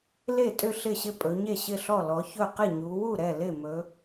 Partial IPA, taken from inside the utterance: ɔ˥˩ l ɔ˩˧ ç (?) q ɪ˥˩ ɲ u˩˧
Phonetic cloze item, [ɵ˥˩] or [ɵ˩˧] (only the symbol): ɵ˥˩